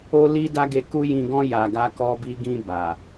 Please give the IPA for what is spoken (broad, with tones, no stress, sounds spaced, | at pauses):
o˦ l i˦ d a˦ ɡ e˧ k u˦ j ĩ˧ ɡ ɔ̃˦ j a˧ ɡ a˦ k ɔ˦ b i˦ ɡ ĩ˧ b a˨